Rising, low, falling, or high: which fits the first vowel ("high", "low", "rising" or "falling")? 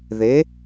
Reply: rising